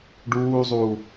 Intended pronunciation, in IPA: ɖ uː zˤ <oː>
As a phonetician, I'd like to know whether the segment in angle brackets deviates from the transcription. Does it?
yes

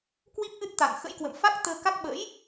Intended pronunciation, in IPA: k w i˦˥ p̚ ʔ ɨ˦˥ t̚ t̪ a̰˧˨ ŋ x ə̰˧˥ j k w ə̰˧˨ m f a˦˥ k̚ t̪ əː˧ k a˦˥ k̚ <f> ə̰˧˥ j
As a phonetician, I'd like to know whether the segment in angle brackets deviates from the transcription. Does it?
yes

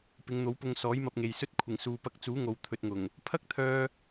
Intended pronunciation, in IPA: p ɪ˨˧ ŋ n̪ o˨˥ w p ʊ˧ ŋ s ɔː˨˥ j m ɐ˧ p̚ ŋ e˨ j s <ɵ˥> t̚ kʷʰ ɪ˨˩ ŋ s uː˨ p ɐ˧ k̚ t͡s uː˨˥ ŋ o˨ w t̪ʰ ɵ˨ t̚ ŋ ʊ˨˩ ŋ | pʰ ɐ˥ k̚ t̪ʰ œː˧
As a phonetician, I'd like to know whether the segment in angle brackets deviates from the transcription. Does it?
no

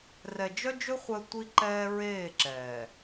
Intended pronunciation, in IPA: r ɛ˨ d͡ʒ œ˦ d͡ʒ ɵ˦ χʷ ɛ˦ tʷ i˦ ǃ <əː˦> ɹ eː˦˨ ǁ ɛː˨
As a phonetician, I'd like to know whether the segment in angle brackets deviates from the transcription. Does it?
yes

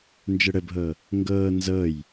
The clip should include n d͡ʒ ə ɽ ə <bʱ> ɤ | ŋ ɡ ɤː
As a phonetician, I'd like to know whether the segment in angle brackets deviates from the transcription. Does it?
no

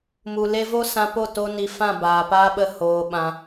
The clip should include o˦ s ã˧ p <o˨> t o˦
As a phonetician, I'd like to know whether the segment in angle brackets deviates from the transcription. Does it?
yes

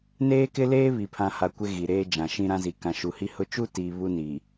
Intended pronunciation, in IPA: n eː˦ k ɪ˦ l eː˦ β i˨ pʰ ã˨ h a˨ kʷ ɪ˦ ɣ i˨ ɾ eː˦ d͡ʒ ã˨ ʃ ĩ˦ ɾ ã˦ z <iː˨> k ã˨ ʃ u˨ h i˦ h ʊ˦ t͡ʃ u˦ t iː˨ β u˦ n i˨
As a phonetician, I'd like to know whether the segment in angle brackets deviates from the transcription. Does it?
yes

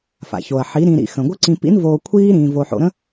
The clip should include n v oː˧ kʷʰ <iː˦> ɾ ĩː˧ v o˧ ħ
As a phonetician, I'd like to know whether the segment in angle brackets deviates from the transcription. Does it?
no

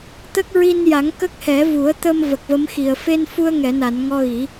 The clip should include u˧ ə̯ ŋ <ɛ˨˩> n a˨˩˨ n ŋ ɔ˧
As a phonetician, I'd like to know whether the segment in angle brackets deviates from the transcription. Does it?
yes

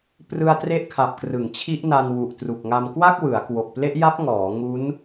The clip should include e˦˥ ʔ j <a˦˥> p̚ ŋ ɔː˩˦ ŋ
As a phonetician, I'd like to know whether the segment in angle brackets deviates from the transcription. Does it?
no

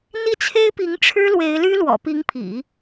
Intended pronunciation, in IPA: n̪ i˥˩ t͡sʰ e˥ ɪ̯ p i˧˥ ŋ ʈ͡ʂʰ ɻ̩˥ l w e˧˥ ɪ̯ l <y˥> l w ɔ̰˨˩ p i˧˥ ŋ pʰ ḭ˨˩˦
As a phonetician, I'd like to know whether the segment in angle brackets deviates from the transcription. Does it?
no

